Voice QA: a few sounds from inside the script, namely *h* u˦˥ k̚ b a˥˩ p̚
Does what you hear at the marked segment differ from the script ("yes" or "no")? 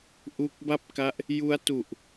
yes